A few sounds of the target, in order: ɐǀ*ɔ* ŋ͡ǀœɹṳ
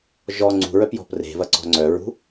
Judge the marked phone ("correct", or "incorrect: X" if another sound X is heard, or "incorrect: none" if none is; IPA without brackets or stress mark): incorrect: ɔ̤